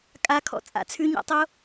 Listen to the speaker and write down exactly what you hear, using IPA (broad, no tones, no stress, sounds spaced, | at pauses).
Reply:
kʼ a kʰ ɔ̰ t͡sʼ a̰ t͡sʰ ʉ ɲ a̰ tˤ o